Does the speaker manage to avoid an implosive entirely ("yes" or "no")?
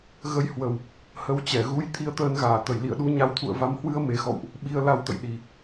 no